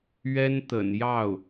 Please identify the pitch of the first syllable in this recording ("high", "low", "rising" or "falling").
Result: high